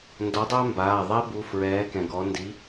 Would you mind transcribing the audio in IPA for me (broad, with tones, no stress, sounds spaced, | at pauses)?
n d ɔ˨˥ dˤ a˥ m b aː˩˧˩ ðˤ ɛ˥ b u˩˧˩ f ɹ ɛː˨˥ k ɛ̃˩ ɡ ɔ˨˥ n d i˨˥